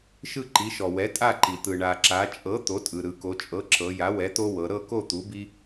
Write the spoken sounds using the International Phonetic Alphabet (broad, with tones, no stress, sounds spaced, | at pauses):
ʃ ɯ˥˨ ǃ i˩˥ ʃ ɔ˩ w ɛ˩˥ tʼ a˥˨ ǃ i˩ t̪ ɯ˩ ɳ a˩ ǁ a˩˧ t͡ʃʼ ɤ˩˥ t̪ o˩˥ tʼ ɯ˩ ɾ ɯ˩ k o˩˧ t͡ʃʼ ɤ˩˥ ǁ ɤ˩˧ j a˩˥ w ɛ˩˥ t̪ o˦ w ɤ˩˧ ɾ ɤ˥˨ k o˥˨ t̪ u˩˥ b i˦